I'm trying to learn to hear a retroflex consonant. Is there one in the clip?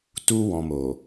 no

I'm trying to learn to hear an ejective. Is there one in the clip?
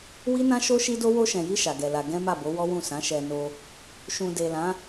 no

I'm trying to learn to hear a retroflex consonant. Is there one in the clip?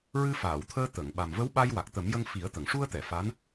yes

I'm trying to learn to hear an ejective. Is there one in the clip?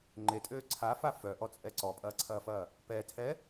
yes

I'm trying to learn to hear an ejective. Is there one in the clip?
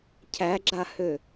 no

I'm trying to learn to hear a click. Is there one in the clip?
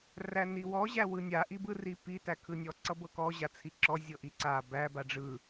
yes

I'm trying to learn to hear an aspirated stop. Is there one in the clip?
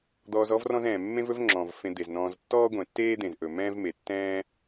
no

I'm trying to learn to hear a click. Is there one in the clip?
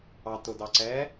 yes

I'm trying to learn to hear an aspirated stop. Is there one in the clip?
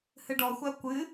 no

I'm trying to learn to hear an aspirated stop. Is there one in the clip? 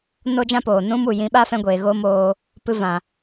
no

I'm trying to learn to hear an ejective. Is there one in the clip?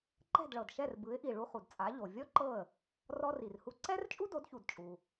yes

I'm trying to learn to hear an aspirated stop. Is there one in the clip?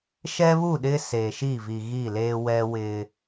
no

